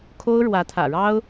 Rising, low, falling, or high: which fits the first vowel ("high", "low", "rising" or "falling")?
high